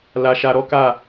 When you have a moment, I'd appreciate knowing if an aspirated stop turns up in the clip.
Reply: no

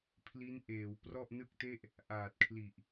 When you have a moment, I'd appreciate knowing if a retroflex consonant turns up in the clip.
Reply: no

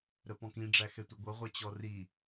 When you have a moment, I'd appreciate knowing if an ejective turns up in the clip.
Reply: no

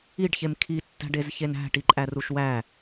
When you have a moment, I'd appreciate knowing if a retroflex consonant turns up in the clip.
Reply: yes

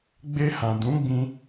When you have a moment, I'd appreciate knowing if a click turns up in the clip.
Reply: no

